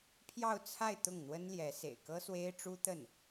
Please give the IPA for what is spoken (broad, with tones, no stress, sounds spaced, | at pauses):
pʰ j ɑ˥˧ ʊ̯ t͡sʰ a˥˧ ɪ̯ t̪ ʊ˥˩ ŋ n̪ w ə˥ n l j ɛ˧˥ s ḛ˨˩ ɪ̯ k ɤ˥ s w e˥ ɪ̯ ʈ͡ʂ u˥ t̪ ə˥˩ n